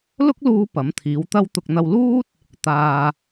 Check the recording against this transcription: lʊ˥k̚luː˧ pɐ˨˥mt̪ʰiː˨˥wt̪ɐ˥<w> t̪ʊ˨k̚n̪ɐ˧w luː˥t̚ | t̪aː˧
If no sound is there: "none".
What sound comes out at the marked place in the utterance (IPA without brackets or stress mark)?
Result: w